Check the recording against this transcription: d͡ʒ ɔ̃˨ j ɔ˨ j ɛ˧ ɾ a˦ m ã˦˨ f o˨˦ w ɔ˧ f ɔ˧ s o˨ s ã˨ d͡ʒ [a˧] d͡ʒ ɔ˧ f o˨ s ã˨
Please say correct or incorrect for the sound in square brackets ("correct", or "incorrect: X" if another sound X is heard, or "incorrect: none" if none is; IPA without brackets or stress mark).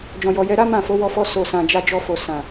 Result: correct